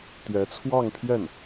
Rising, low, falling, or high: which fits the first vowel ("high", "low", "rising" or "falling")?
rising